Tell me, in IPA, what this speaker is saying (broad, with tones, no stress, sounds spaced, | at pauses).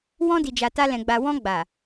w ɔ̃˧ d i˨ d͡ʒ a˨ t a˧ l ɛ̃˨ ɡ͡b a˨ w ɔ̃˧ ɡ͡b a˨